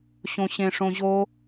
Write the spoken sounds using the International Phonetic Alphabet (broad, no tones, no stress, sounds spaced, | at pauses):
ɕ õ ɕ ẽ ʂ õ ʑ o